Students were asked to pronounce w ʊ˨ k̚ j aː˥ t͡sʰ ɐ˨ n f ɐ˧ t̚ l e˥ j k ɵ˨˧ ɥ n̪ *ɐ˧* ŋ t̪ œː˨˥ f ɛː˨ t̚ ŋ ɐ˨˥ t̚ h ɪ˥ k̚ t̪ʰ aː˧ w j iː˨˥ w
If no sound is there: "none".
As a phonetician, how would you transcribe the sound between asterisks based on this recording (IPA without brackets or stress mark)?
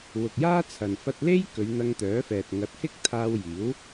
ɐ˧